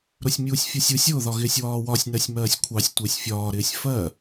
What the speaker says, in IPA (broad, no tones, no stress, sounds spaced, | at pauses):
ɾ ʊ sʲ mʲ uː sʲ fʲ ɒ sʲ u sʲ ʊː ð ɒ ɣ ɪː sʲ w ɒː w ɒ sʲ n ɜ sʲ m ɜː sʲ kʷʰ ɑ sʲ tʷ ɪː sʲ fʲ ɒː ɾ ɪː sʲ f ɜ